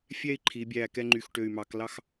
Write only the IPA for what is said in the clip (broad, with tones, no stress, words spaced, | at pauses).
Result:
fʲɛ˥˧i̯ǃʰi˩˧bʲæ˧˩ kɛ˥ŋ͡ǃy˧˩xʈø˧˩y̯mɑ˩˧k lɑ˥x